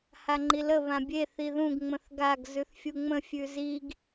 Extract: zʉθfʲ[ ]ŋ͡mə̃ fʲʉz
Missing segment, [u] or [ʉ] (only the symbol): u